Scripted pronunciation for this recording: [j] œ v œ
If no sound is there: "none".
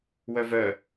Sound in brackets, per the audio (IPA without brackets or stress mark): w